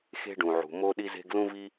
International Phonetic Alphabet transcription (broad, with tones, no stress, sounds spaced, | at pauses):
x e̤˥ ɖ ũ˩ ʕ ṳ˩ m o˥ ɗ i˥ z e̤˥ ɡ l ũ˥ v i˥